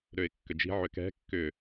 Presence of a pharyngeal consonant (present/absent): present